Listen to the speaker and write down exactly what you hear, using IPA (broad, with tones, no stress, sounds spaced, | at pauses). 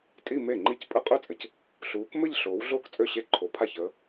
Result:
tʼ i˥˧ m e˥˩ ŋ͡ǃ i˥˩ c pʼ ɘ˥˧ qʼ ø˥˧ t͡sʼ ɘ˨˦ c | ɬ uː˨˦ k m ɘ˥˧ ʎ ɬ oː˨˦ w ɮ oː˥˧ k t͡sʼ ø˥˩ ɕ e˥˩ ǃʰ o˨˦ pʰ a˥˩ ç əː˨˦